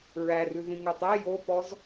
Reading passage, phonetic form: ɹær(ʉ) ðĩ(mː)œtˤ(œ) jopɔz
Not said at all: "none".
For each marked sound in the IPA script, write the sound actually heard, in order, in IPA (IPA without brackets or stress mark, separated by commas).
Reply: ʉ, ŋ, æ